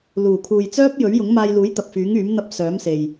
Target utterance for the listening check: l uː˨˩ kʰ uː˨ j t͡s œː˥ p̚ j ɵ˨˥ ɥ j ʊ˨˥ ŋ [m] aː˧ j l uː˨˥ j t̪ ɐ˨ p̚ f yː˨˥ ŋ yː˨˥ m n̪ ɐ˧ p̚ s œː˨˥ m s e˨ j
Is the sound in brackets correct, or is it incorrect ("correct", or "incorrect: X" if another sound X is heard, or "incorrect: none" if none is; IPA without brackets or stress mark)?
correct